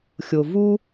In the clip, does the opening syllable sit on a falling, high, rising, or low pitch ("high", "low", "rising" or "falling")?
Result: low